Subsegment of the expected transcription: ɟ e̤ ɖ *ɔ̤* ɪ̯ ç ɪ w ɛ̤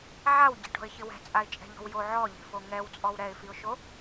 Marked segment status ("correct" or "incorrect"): correct